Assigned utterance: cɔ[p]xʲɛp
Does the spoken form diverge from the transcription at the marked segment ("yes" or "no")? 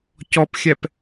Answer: no